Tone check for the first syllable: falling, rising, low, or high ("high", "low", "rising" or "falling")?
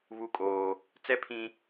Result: high